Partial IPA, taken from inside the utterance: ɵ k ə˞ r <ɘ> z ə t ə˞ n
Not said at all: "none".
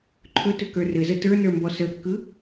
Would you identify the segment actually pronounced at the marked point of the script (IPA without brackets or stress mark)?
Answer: ɘ